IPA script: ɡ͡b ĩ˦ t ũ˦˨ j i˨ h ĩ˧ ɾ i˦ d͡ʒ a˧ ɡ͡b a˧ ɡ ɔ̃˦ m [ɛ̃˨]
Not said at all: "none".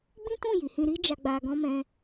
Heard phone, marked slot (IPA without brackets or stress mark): ɛ̃˦